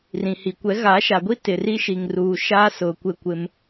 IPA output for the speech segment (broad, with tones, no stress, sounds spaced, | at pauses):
r ĩ˨ h i˨ kʷ ɛ˨˦ ɣ a˨˦ ʃ a˨ ɡʷ i˦ t ɪ˨ r i˦ ʃ i˨ ŋ r uː˨ ʃ aː˦ s ʊ˨ kʷ ɪ˦˨ kʷ ɪ˦ m